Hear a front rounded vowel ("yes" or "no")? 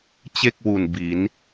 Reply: no